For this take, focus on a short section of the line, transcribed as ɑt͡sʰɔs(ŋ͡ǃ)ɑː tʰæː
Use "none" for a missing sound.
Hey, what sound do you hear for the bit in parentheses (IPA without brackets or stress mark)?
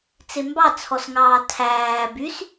ŋ